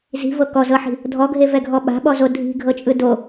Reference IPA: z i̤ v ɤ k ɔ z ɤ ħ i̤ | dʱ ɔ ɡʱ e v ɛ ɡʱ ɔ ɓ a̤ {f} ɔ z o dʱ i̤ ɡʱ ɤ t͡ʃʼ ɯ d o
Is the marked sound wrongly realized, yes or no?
yes